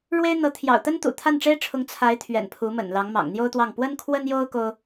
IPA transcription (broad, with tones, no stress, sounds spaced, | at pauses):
ɻ w e˥ ɪ̯ n̪ ɤ˧˥ t̪ʰ j ɑ̰˨˩ ʊ̯ t̪ ə˥ n t̪ ṵ˨˩ t̪ʰ a˥˩ n ʈ͡ʂ e˥ ɪ̯ ʈ͡ʂʰ ʊ˧˥ ŋ t͡sʰ a˧˥ ɪ̯ t̪ʰ ɥ ɛ̰˨˩ n pʰ u˧˥ m ə̰˨˩ n l ɑ˧˥ ŋ m ɑ̰˨˩ ŋ n̪ j o˥ ʊ̯ t̪ w ɑ˥˩ ŋ p w ə˥ n kʰ w ə˥ n j o˥ ʊ̯ k o˥ ʊ̯